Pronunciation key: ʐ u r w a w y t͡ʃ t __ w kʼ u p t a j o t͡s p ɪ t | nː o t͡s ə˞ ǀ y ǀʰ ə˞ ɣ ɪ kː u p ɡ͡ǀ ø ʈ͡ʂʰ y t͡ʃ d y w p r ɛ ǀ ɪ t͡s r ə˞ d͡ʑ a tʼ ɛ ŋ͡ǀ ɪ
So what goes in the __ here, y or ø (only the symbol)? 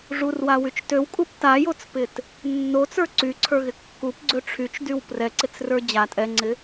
ø